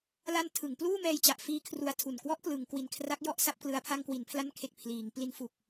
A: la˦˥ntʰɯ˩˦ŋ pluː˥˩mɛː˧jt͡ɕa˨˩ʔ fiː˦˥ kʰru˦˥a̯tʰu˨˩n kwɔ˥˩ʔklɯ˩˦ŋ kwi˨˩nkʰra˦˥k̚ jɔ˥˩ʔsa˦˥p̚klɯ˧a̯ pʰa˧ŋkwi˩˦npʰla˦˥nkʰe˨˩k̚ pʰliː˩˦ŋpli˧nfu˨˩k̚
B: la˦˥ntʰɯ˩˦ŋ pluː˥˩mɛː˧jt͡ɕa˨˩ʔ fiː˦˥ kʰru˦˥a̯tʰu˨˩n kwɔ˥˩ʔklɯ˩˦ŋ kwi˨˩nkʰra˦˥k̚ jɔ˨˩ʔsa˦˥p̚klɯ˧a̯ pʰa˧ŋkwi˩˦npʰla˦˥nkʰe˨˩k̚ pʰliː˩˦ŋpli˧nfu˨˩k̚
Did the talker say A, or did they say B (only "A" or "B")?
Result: A